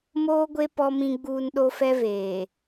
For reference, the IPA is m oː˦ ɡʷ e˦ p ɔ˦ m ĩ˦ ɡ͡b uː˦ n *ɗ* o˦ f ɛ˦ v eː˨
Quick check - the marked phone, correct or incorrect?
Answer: correct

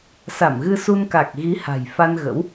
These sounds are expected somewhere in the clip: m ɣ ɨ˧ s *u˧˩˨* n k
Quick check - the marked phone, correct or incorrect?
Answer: incorrect: u˧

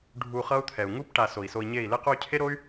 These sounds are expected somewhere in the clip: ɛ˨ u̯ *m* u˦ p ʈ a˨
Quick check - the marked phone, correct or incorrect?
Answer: incorrect: ŋ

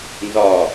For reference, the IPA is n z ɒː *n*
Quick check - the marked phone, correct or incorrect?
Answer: incorrect: none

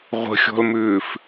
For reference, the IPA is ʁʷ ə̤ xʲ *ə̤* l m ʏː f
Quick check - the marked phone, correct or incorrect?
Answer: incorrect: ɔ̤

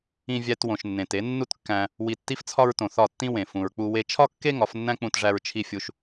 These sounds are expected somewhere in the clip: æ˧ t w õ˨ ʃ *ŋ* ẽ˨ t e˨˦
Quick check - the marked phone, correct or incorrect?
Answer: incorrect: nː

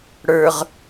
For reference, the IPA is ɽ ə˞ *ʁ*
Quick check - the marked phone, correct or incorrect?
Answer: correct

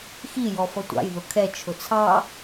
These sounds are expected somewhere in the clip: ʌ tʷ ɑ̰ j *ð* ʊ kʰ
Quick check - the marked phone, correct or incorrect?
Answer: correct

